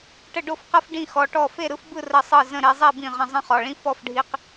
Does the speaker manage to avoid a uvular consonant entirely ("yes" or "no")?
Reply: no